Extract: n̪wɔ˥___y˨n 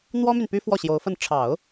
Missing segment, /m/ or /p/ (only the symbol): m